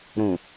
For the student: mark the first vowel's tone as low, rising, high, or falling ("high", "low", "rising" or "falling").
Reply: low